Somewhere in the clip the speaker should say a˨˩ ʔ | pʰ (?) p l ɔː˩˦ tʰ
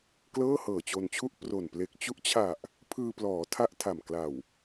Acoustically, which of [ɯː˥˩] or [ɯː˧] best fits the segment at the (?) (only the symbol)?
ɯː˧